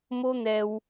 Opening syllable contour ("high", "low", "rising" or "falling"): high